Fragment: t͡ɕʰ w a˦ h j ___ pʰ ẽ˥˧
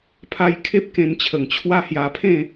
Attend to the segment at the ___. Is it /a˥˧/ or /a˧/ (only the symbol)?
a˧